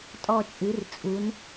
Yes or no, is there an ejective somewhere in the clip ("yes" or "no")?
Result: yes